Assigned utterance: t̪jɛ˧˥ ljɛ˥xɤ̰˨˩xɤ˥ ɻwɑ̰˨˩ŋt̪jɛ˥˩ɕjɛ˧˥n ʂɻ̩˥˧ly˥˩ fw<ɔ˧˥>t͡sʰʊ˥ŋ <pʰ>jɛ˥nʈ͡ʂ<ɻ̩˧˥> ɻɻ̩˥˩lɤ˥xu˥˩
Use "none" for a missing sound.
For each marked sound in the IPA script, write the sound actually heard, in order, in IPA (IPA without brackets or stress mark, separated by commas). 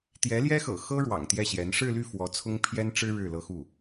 ɔ˧˥, pʰ, ɻ̩˥